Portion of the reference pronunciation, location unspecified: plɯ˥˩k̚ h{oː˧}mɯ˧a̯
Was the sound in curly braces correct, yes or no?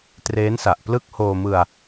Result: yes